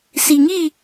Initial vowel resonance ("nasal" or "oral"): oral